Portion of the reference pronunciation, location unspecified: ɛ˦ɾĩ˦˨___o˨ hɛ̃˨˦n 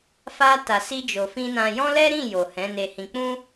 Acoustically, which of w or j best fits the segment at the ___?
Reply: j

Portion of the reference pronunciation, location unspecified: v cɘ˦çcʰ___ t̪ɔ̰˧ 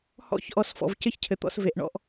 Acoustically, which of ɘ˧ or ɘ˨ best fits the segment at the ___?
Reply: ɘ˨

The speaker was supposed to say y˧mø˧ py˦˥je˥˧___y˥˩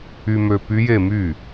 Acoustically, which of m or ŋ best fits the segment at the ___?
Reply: m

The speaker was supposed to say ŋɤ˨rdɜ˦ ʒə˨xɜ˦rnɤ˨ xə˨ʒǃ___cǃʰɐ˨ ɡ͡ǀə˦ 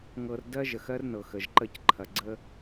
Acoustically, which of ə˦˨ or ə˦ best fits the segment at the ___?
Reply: ə˦˨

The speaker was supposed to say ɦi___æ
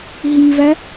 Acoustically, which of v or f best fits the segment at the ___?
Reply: v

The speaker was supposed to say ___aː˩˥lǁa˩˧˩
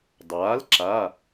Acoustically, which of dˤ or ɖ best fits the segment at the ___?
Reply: dˤ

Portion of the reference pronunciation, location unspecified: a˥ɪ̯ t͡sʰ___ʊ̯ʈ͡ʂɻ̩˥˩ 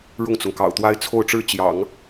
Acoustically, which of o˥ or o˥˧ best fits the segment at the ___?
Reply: o˥˧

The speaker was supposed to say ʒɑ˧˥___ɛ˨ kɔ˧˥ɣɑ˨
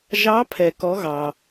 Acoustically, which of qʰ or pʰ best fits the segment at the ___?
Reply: pʰ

